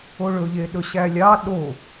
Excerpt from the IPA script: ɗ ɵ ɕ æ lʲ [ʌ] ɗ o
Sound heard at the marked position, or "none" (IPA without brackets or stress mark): ɑ